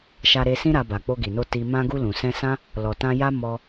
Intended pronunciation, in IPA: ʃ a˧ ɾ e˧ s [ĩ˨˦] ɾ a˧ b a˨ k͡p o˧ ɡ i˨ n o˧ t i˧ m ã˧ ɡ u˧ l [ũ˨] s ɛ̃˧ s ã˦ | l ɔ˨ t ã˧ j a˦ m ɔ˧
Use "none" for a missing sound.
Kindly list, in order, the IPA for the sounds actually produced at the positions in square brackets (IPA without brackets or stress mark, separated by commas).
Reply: ĩ˦, ũ˨